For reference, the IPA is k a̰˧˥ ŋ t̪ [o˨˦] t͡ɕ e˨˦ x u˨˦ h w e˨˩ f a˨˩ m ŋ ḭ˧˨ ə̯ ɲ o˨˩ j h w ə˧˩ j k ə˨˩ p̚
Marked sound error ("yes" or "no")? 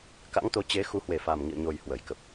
no